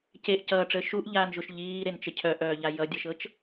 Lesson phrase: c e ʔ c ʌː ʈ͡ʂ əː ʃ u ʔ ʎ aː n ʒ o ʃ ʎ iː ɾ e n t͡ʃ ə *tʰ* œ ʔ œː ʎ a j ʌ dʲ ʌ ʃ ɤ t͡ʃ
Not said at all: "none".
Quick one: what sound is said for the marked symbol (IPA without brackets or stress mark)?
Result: cʰ